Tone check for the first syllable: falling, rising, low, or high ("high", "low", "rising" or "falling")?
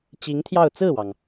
rising